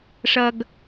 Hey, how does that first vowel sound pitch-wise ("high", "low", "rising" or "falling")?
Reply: low